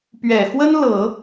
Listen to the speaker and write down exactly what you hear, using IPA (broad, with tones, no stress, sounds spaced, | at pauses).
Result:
p ɥ ɛ˨˩ x w ə˥ n l ɤ˨˩˦